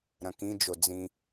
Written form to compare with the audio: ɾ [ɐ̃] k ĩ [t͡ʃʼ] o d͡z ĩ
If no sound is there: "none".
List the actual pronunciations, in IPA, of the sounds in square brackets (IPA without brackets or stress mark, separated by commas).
ɐ̃, d͡ʒ